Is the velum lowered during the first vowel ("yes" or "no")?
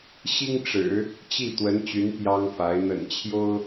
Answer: no